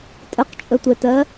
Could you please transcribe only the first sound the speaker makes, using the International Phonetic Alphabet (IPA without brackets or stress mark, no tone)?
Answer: tʼ